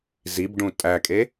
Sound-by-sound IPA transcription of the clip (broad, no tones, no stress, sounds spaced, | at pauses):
z i b ɖ ũ tʼ æ kʼ e